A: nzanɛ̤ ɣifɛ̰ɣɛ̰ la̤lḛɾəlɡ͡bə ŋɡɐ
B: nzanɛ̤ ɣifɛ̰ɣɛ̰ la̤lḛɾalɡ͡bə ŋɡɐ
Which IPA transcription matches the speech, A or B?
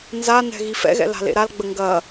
B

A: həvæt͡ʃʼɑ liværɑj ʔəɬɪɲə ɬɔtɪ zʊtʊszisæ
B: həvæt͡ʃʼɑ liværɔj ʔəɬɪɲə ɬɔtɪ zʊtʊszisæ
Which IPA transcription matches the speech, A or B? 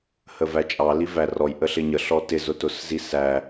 B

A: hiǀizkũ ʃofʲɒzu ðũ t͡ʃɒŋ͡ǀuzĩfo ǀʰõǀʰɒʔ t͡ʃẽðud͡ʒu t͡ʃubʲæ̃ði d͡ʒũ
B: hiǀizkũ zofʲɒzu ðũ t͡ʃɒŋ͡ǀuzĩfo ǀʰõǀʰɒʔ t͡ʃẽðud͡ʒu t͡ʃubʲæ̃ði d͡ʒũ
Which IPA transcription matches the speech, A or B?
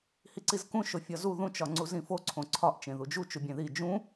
A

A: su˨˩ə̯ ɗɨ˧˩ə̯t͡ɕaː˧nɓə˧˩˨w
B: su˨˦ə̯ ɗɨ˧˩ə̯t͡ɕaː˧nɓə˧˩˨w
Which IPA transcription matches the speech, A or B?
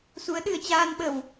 B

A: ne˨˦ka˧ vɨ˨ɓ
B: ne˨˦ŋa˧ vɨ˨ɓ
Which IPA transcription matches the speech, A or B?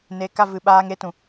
A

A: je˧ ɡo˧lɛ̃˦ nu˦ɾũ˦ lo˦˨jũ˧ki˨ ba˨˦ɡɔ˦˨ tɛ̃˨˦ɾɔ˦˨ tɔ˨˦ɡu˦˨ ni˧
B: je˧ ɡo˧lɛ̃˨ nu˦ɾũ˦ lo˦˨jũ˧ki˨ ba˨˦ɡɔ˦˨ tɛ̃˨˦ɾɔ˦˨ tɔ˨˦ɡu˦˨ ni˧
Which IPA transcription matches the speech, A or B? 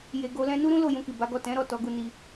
A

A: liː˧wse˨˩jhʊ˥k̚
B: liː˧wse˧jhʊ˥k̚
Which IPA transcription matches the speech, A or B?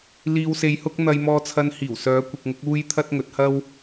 B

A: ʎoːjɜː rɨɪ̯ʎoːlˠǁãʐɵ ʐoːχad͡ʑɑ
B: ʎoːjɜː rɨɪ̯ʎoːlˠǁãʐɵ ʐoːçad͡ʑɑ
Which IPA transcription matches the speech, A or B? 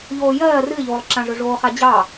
A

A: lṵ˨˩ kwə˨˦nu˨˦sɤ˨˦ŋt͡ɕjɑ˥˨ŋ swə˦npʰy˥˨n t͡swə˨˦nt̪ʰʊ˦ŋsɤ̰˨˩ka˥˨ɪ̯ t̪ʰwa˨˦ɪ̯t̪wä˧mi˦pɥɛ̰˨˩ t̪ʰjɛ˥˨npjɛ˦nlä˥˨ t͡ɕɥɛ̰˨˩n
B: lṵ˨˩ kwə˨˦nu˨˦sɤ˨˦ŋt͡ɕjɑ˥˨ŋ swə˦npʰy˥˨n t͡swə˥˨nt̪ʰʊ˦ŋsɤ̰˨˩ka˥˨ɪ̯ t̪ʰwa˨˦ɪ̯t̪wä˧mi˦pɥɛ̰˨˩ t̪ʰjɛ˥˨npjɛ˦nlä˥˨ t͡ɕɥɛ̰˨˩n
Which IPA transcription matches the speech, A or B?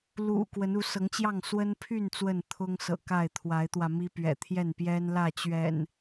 B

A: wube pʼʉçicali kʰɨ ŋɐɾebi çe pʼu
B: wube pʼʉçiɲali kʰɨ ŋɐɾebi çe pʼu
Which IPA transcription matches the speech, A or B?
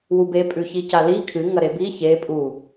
A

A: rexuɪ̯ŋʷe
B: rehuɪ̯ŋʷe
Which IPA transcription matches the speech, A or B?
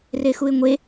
A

